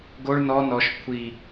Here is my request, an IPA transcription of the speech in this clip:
ɡ o ɭ n ɔ n ɔ ʃ kʷʰ i

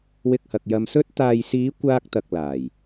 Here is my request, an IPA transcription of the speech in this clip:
w ɪ˧ k̚ h ɐ˨ k̚ j ɐ˧ m s ɵ˥ t̚ t̪ aː˨ j s iː˨˧ kʷ aː˧ k̚ t̪ ɐ˨ k̚ l aː˨˩ j

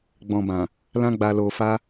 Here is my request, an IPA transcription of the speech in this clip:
ɡ͡b ɔ̃˨ b ã˨ | l ã˧ ɡ͡b a˨ l o˨ f a˧

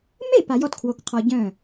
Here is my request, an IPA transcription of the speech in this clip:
m e˥˩ p a˩˥ j ɔ˧ t kʰ w o˧ k qʰ ɔ˧ ɟ œ̃˥˩

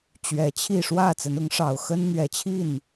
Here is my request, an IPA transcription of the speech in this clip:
t͡ɕ ɥ ɛ˨˩ t͡ɕʰ i˥˨ ʂ w ä˥˨ t͡s ə˨˦ n ʊ˨˦ ŋ ʂ ɑ˨˩ ʊ̯ x ə˦ n n̪ ɥ ɛ˨˩ t͡ɕʰ i˥˨ n

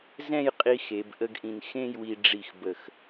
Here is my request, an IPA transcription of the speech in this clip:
z ɛ̃˥˧ j qʼ i˧ x e˩˧ b ʔ ə˥˧ ɡ ʔ ĩ˧ n x ẽ˥˧ j w i˧ ɖ͡ʐ i˧˩ x b ə˧˩ x

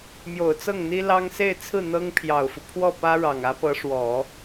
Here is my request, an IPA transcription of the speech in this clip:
m j o˨˩ ʊ̯ t͡s ɤ˥˩ ŋ n̪ i˥ l ɑ˥ ŋ s e˥˧ ɪ̯ t͡sʰ ɹ̩˥˩ n̪ ɤ˥ ŋ pʰ j ɑ˨˩ ʊ̯ f u˦ pʰ w ɔ˥˩ p ä˥ ɻ ɑ˨˩ ŋ ä˧˥ p ɤ˧˥ ʂ w ɔ˨˩˦

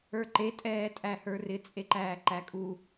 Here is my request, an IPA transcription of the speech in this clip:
ə˞ ǃ e tʼ ɛː tʼ æ h ə˞ r ɪ t͡sʼ e ǃ æː ǃ æ kʼ u

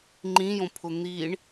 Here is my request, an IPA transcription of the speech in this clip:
ŋ͡ǃ ĩ j õ pʰ ʊ n̪ i ɳ

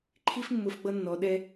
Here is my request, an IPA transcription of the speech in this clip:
ǃʰ i˦ f mː ʊ˧ f ɡ͡b ʌ˦ nː ɔ˧ ɗ ɛ˦

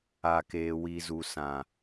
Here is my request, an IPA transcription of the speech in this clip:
a˨ k eː˨ w i˨ z u˨ s ã˨

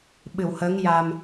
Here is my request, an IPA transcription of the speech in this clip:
ɓ ɨ˨˩˨ w h əː˧˥ ŋ j a˧ m

